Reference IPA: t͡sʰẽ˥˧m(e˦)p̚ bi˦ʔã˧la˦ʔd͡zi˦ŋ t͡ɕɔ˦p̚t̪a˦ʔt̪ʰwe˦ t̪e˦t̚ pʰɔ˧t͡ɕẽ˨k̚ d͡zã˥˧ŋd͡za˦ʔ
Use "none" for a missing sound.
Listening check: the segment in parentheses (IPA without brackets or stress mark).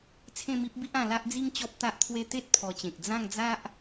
i˦